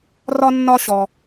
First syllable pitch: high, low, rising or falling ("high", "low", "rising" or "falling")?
high